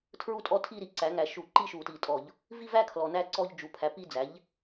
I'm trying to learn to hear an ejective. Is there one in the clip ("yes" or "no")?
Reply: yes